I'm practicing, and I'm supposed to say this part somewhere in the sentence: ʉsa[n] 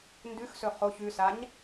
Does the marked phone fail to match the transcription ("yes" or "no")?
yes